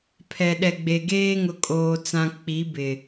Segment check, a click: absent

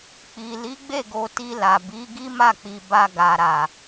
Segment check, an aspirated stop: absent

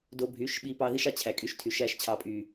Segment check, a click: absent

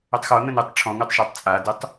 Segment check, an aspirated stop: present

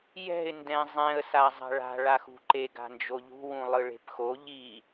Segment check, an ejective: absent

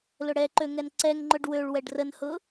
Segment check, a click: present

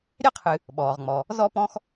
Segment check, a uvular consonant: present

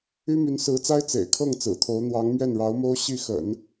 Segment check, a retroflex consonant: present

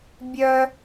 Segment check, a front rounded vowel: present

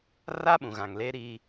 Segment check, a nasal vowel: present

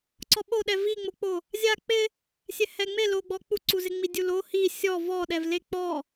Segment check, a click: present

